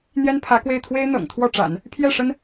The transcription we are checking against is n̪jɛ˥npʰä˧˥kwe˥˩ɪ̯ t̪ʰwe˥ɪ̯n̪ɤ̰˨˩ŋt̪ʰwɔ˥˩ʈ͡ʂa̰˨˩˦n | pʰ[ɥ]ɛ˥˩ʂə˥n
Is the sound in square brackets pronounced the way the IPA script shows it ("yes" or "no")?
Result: no